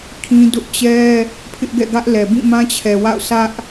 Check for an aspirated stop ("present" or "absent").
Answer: present